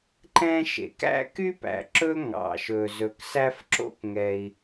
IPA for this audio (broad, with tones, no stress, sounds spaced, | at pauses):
ǃ ɛ̃˥ ʃ ḛ˩ k æ̰˥ k y˥ p æ̰˩ ǁ ɵ˥ ŋ ɑ̰˩ ʃ ɵ˩ z ɵ˩ k s æ˥ f ǁ o̰˥ k ŋ ɛ˩ i̯